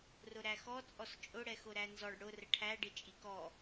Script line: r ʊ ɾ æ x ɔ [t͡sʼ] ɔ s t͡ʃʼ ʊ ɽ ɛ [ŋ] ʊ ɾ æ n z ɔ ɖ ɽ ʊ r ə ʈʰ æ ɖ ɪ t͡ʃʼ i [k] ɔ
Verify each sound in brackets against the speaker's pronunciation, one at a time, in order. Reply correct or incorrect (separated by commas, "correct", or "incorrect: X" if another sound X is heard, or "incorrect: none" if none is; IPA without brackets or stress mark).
correct, incorrect: x, correct